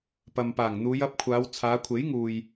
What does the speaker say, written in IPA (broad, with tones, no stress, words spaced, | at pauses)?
pɐ˨mpaː˨˩ŋn̪uː˨˧j ɐ˨˥p̚kʷʰaː˨˧w t͡sʰaː˨˧kʷʰe˨˥jŋuː˨j